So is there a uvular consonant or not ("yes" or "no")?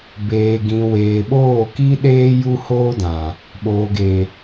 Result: no